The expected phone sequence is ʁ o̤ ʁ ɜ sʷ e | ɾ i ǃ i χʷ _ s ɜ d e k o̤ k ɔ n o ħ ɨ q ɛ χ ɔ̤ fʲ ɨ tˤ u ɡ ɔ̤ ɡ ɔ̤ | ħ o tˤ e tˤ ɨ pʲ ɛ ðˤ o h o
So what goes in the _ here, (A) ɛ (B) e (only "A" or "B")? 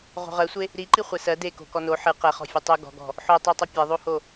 A